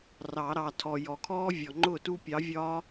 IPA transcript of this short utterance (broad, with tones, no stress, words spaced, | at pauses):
rɑ˨˩˦ɾɑ˨tʰɔ˨ jɔ˨kʰɔː˦ vʲɔ˨ŋ͡ǃʊː˥˩tu˦pʲɑ˨˥ vʲɒ˦